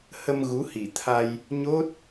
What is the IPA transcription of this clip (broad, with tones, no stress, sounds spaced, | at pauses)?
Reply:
h ə˧ m ɣ u˨˦ h i˧˩ t̪ʰ a˧ j | ɲ o˦˥ t̚